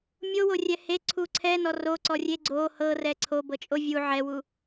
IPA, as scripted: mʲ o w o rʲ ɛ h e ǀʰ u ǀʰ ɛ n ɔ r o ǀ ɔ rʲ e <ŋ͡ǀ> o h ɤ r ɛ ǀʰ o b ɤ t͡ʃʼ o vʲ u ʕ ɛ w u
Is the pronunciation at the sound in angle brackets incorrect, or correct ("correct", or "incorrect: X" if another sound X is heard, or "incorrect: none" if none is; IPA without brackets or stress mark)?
incorrect: ɡ͡ǀ